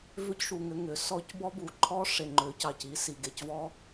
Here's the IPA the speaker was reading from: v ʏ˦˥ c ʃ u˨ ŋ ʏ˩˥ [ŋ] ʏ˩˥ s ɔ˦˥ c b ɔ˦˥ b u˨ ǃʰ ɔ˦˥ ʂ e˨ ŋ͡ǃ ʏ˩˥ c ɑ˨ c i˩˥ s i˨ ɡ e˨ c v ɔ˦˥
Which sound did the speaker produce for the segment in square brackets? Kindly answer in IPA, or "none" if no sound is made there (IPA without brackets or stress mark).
ŋ